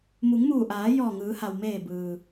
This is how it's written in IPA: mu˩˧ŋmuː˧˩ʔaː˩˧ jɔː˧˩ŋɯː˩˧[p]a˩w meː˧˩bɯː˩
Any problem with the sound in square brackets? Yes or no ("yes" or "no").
yes